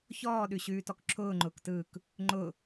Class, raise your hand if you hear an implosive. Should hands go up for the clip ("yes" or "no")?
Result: yes